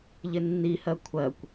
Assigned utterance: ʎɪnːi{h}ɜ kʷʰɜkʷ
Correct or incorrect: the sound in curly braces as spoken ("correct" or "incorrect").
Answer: correct